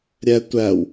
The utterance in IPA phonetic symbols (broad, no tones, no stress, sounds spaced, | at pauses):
ɾʲ æ tʷ æ w